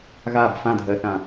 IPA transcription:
ɣ a b f ã dʱ ɜ θ ã

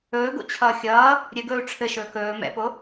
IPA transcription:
ɵː ɡ o̰ t͡ɕʰ ʌː xʲ ʌː | ɾʲ ɘ ɡ ɵː u̯ ʈ͡ʂʰ ɘ ʃ ɵː k ɵː m ɛ̰ p o

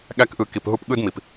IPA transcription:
ɠ æ˦ k ʔ ɯ˧ k i˧ p ɦ u˦ p ɠ ɯ˦ d m i˨ p

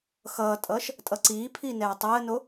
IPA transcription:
x ʌː tʼ ʌː ʃ | tʼ ʌ ǀ iː pʰ iː n ɛː tˤ ɛ ə̯ n o

